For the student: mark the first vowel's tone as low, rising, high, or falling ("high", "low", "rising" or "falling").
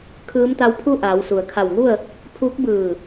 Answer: rising